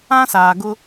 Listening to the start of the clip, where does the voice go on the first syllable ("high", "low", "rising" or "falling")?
high